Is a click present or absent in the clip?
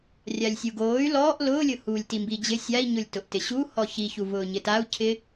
absent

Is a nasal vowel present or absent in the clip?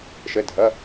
absent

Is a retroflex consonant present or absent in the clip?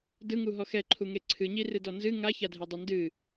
absent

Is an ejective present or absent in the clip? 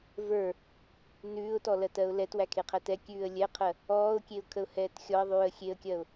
absent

